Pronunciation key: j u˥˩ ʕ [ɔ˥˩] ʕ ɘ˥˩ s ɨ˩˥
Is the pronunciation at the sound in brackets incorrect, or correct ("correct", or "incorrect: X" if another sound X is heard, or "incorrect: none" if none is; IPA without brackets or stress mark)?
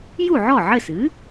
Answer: correct